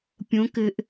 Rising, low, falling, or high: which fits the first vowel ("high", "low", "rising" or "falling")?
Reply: rising